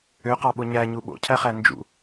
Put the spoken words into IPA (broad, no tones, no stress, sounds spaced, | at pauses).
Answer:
ø q ɑ ɓ o ɲ æ ɲ u ɓ o̰ cʰ æ χ æ n d͡ʒ ṵ